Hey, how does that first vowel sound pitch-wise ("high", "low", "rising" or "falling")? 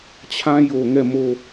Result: high